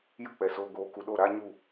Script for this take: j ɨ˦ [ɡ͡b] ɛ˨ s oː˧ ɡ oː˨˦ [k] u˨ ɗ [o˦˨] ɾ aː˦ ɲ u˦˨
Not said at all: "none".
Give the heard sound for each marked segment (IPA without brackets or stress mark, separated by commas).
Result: k͡p, k, o˦˨